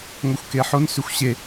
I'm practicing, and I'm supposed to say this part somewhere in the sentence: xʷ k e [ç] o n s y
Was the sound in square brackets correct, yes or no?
no